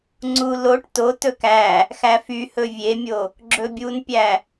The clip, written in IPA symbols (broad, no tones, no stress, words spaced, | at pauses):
ŋ͡ǀu loʈ totɵk æ | xæfyhɵ vʲemʲo | ɡ͡ǁɵbʲunpʲæ